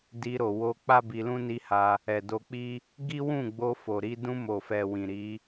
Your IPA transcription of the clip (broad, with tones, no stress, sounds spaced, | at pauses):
d i˧ ɾ o˨ w o˧ k͡p a˦ b i˧ l ũ˦ n i˧ h a˧ | ɛ˨ d o˧ k͡p i˦ | ɡ i˦ w ũ˦˨ ɡ͡b o˧ f o˨ ɾ i˧ d ũ˧ m o˨ f ɛ˨ w ĩ˨ ɾ i˨˦